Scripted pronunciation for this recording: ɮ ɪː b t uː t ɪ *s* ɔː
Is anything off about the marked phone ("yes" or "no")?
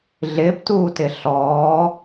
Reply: yes